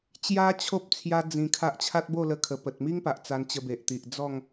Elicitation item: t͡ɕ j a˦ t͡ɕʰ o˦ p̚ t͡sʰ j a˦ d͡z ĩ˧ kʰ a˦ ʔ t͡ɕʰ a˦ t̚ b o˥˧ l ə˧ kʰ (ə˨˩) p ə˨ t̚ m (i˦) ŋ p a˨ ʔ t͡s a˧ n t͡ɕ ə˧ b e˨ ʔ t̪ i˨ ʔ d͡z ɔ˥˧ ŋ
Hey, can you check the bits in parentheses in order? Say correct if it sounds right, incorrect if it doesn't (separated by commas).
correct, correct